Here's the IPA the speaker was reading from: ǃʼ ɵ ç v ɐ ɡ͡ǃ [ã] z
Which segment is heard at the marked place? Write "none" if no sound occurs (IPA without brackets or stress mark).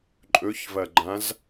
ã